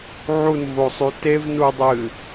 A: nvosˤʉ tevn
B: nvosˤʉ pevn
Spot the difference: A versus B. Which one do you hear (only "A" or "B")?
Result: A